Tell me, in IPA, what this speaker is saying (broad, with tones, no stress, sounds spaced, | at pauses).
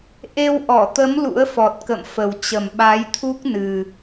ʔ e˧ w ʔ ɔ˧˩ t̪ ə˨˦ m l ṵ˧˥ ə̯ f ɔ˨˩ t̚ k ə̰˧˨ m f ə˨˩ w t͡ɕ ə˨˩ m ɓ a˨˦ j t̪ʰ u˦˥ k̚ n ɨ˨˩